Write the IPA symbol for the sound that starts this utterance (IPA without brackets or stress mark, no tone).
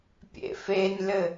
pʲ